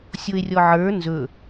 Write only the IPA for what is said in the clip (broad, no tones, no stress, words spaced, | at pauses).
sʲoe̯rʲɔʕə˞ nzɵ